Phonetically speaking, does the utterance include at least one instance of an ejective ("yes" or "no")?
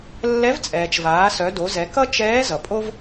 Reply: yes